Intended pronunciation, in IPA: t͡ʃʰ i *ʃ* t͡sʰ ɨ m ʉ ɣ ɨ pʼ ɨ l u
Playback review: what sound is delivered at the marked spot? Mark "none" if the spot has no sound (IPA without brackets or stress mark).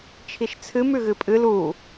ʃ